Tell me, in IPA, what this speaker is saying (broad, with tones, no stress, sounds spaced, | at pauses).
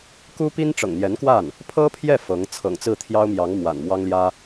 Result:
k u˥ p i˥ n ʈ͡ʂ ɤ̰˨˩ ŋ n̪ j ɛ˧˥ n k w a˥˩ n | pʰ ɤ˥ pʰ j ɛ˥˩ f ɤ˧˥ ŋ t͡sʰ ɤ̰˨˩ ŋ t͡s ɹ̩˥˩ t̪ʰ j ɑ˥ ʊ̯ m j ɑ˧˥ ŋ m w a̰˨˩ n m w ɑ˥ ŋ l j ä˥